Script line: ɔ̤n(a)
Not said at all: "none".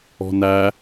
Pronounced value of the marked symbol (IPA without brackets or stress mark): æ